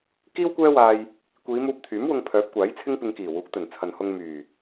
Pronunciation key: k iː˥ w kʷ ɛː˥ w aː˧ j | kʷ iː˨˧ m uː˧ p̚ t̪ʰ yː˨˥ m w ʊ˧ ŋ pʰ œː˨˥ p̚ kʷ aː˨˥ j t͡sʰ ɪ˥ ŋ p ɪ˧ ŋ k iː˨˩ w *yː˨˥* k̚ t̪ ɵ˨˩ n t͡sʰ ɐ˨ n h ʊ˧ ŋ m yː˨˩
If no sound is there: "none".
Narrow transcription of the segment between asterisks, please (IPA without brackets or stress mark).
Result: uː˨˥